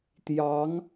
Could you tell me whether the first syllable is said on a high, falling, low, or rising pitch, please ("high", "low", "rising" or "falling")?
rising